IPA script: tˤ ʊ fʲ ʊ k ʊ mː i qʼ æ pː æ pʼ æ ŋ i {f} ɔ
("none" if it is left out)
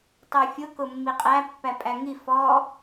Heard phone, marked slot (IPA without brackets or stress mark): f